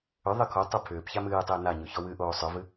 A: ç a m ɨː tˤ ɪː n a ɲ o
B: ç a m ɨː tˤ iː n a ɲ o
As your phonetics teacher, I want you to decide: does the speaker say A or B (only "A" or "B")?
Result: A